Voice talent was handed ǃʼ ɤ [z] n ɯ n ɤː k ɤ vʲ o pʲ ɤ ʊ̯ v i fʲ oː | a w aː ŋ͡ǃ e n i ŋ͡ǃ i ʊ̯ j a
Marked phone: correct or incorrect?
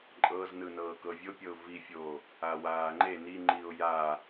correct